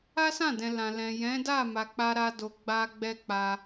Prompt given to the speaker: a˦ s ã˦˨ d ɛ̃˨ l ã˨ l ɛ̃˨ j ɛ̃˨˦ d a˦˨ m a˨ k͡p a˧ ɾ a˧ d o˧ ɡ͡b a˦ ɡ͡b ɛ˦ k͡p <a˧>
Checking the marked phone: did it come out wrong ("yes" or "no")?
no